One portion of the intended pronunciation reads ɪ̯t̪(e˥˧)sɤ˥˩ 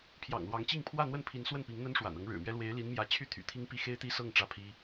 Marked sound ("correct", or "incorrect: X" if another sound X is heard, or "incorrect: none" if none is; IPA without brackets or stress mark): incorrect: i˥˧